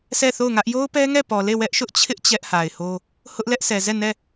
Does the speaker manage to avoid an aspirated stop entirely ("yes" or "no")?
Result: no